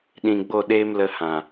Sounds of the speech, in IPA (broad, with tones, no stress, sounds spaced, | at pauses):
ɗ ĩ˨ ɡ͡b o˦˨ ɗ eː˦ m l ə˧ h ã˨